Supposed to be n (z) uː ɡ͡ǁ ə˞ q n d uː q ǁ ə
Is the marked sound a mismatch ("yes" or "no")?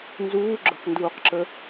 no